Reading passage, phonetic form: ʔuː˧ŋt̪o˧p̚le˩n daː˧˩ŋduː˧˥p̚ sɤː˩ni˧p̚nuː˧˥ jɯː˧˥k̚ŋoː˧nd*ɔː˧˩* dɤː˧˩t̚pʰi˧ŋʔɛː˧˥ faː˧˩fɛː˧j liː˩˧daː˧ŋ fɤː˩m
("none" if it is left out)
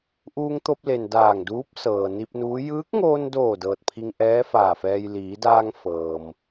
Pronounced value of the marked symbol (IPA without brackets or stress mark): oː˧˩